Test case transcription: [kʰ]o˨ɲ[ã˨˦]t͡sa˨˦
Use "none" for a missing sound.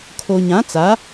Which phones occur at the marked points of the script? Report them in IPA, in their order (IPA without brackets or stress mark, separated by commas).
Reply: kʰ, ã˨˦